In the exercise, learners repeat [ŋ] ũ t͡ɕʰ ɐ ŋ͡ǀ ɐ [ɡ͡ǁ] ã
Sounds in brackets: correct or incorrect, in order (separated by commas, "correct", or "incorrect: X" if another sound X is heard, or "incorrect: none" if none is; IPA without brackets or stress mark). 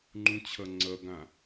incorrect: ŋ͡ǃ, incorrect: ɡ